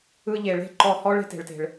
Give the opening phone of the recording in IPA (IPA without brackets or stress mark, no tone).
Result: ɯ